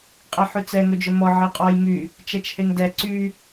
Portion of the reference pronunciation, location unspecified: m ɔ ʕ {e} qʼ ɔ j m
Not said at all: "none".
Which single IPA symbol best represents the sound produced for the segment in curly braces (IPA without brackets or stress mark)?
e